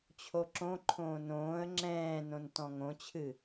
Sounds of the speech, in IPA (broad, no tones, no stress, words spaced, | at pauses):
t͡ɕʰoǁõǃʰõː nõːə̯ ŋ͡ǁɛ̃ːnõn tɔ̃ŋõt͡ɕʰɨ